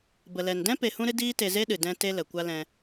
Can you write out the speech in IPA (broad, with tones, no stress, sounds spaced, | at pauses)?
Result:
b ə˨ l ɛ˨ n d ɛ̃˦ p e˧ h ũ˦ ɾ ɨ˦ d iː˦ t e˧ z e˦ ɗ ɨ˨ d ɛ̃˧ t e˦ l ə˨ kʷ a˦ l ɛ̃˧